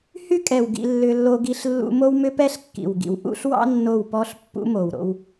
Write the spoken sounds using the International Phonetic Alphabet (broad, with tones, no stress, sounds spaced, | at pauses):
h y˦ kʼ ɛ˨ w ɡ ḭ˦ lː ʏ˦ lː o˦ ɡ i˦ ɬ lː ṵ˦ m o˦ w m ʏ˦ p ɛ˦ ɬ kː ḭ˨ w ɡ ḭ˨ w ʔ ṵ˦ ɬ w ɑ̰˦ nː o˦˨ w p ɔ˦ ɬ pː ṵ˦ m o˨ w ɾ o̰˦ w